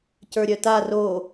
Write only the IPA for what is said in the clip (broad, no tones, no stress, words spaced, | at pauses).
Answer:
cə˞ɾʲœta ro